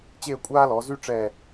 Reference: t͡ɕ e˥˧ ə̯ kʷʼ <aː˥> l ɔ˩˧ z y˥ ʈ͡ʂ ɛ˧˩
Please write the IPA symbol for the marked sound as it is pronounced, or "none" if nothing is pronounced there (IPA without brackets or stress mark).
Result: aː˥